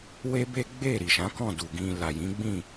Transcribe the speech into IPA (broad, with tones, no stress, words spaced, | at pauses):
we˦be˦ ɡ͡be˦˨ ɾi˨ʃã˨˦kɔ̃˦˨du˨ ɡĩ˨ la˨jĩ˨˦ɡ͡bĩ˦˨